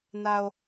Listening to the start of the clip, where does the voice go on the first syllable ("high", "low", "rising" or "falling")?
high